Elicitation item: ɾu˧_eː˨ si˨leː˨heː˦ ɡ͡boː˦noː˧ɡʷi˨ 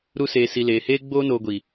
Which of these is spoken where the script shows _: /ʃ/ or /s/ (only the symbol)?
s